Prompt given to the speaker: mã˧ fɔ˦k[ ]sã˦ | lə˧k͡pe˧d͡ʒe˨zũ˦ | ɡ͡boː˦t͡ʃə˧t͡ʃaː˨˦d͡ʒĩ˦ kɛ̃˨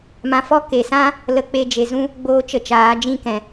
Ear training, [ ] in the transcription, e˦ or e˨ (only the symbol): e˨